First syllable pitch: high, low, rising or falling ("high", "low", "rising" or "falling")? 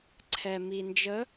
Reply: low